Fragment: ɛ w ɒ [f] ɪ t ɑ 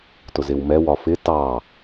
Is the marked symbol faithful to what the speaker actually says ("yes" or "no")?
yes